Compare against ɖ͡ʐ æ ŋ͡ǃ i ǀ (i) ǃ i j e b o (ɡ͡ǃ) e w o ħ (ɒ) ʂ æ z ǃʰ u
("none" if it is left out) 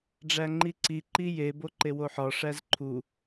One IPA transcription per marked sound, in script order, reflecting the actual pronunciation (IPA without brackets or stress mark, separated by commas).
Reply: i, ǃ, ɒ